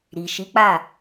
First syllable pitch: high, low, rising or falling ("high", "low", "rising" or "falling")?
low